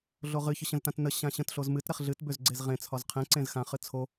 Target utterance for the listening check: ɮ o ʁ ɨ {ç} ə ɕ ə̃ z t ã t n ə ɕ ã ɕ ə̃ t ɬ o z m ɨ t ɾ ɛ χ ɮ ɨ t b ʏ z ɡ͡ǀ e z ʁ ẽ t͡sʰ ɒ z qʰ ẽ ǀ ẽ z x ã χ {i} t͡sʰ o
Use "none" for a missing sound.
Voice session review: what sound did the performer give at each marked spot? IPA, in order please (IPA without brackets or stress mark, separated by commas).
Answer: ç, ɨ